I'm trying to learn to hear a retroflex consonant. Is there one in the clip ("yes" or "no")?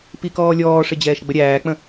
yes